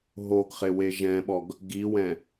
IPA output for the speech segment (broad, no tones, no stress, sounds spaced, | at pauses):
ɦ o ɡ χ ɪ w e ʒ ɛ̃ ɓ ɔ ɡ | ɡ i w ɛ̃